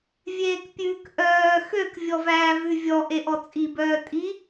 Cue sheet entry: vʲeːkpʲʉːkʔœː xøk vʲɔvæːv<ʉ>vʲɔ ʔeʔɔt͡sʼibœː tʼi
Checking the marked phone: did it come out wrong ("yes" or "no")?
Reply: no